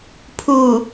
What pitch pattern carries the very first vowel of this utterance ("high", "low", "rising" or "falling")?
low